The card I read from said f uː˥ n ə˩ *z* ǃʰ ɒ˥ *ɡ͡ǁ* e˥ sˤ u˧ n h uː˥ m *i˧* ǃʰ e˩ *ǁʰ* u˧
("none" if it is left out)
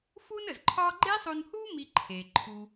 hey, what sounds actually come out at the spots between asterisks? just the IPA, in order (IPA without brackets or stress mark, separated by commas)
z, ɡ͡ǃ, i˧, ǃʰ